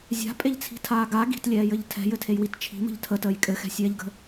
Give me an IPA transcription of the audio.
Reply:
zʲa̤pʼeʎt͡sʰi̤tʰaː ɡa ɡi̤tlʲɛːjɘʎ tʰɛ̤jɘtʰejwit t͡ʃʰi̤mə̤ʎ tʰətəːj kʼɘxɛ̤sʲɛːʎɡə̤

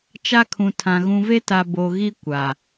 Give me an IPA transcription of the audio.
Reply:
t͡ʃa˦kʰũ˨tʰã˨ ɣũ˨ve˦ta˨ bo˨ɣi˦ kʷa˨

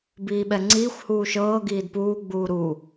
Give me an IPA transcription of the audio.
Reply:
biːɓɛŋ͡ǀiːxʷhuː ʃɤː ɡiːdpuːɡ͡buː ɾu

